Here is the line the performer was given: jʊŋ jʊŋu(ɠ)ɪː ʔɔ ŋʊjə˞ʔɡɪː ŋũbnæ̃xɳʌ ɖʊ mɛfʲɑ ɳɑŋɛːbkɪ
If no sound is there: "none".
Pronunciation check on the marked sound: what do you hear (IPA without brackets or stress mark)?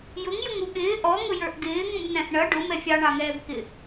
ɠ